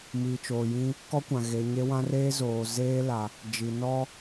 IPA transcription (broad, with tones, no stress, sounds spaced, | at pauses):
m i˨ t͡ʃ oː˨ j ĩ˦ | k ɔ˦ kʷ ã˨ ɣ e˨ ɲ e˦ w ã˦ r eː˦ z oː˨ z eː˦ l a˨ | d͡ʒ i˨ n ɔ˦